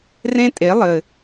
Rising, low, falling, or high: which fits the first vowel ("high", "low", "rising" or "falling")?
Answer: high